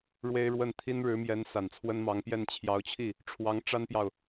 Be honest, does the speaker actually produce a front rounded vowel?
no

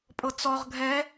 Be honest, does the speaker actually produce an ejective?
yes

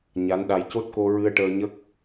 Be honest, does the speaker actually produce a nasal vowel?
no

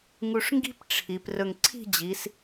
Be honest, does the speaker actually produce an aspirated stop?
yes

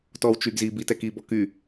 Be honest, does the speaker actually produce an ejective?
no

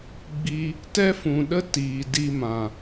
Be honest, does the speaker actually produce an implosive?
yes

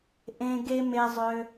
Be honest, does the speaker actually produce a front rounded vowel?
yes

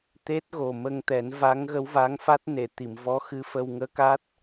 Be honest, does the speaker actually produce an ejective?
no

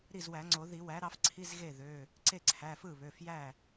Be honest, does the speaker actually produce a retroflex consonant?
no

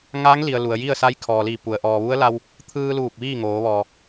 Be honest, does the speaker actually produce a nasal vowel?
no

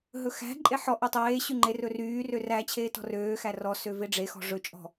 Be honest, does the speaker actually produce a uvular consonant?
no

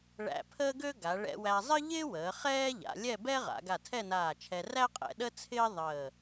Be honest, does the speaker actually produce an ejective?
yes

